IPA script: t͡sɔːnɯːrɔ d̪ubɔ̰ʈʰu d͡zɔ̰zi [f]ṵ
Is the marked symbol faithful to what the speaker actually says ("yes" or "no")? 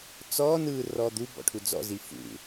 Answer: yes